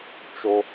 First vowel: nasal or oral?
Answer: oral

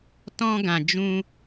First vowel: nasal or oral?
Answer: nasal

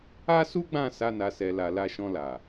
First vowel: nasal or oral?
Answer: oral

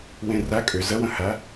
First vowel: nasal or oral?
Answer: nasal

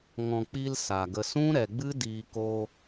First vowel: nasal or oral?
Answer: nasal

